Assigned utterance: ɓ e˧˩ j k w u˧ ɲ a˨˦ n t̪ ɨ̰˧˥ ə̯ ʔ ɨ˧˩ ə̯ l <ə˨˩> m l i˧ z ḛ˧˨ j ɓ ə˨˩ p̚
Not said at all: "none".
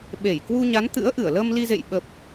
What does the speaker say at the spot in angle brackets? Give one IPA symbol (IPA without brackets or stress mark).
ə˧